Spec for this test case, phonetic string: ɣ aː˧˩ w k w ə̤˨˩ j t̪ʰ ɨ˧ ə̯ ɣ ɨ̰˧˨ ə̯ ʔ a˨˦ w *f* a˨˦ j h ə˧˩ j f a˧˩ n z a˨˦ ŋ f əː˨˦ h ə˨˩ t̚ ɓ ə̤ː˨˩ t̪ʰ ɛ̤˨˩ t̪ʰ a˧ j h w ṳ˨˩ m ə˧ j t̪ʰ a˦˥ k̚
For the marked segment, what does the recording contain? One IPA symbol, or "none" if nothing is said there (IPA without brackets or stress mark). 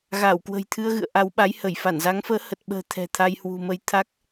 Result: ɓ